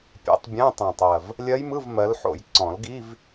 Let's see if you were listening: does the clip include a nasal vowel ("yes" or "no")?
yes